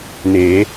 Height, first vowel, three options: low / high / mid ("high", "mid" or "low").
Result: mid